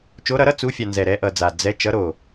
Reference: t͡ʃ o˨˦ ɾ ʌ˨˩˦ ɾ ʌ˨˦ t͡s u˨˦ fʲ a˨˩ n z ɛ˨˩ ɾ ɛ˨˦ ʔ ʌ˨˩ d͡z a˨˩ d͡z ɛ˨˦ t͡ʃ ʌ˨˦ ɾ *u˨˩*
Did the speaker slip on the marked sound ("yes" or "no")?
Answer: yes